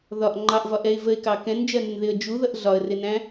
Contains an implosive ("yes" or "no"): no